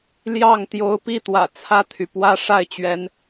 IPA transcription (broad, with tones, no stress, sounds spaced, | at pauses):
l j ɑ˥˩ ŋ t̪ j o˧˥ ʊ̯ p i˥˩ t̪ w ä̰˨˩ t͡sʰ ä˥˩ t̪ʰ y˩ p w ä˥ ʂ a˥˩ ɪ̯ t͡ɕ ɥ ɛ˧˥ n